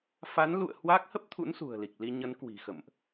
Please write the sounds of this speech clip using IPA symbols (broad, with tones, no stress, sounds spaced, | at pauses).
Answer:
f a˨˦ n l ṵ˧˨ ə̯ h w a˦˥ k̚ h ə˦˥ p̚ t̪ʰ ṵ˧˥ n s ṳ˨˩ ə̯ l i˨˩ k̚ l i˧ ɲ ə˨˦ n k w i̤˨˩ x ə̰˧˨ m ʔ